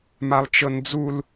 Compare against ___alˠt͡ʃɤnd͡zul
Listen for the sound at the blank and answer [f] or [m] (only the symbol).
m